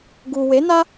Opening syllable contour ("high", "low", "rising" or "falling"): low